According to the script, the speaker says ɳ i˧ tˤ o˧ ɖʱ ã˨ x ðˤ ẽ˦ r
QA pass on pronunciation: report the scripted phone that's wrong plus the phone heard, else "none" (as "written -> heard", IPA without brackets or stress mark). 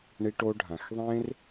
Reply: tˤ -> ʈ